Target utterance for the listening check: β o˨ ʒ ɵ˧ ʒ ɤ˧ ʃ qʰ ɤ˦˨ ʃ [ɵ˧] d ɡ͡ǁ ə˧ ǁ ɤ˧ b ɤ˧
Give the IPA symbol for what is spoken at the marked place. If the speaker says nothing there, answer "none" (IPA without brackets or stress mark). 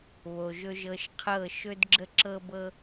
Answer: ɵ˧